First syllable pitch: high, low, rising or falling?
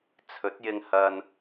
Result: rising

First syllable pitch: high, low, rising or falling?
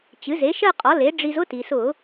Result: rising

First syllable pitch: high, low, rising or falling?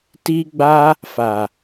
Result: high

